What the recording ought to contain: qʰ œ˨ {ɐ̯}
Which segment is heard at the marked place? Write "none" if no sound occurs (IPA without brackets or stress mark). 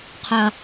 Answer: ɐ̯